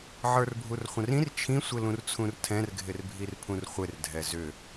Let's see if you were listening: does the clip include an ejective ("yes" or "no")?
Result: no